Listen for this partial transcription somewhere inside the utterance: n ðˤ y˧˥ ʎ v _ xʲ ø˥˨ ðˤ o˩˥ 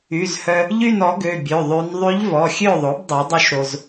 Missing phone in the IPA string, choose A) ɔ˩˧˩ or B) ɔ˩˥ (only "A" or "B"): A